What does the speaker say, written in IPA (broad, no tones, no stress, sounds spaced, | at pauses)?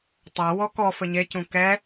tˤ a w ɔ k ɔ f ɘ ɲ e c ũ k ɛ